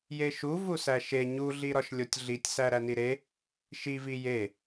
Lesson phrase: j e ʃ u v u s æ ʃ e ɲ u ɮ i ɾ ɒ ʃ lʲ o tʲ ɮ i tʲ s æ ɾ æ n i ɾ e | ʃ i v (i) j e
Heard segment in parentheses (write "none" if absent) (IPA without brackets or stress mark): i